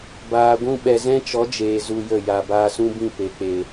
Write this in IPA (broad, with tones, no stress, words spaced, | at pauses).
baː˨ɡʷũ˦ ɓɛ˨zɛ̃˦t͡ʃɔ˨˦d͡ʒeː˨ zu˧jə˦˨ ja˨baː˧sũ˦bĩ˦˨ pe˨k͡pe˨